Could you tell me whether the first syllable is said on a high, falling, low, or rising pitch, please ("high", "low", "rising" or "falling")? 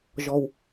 low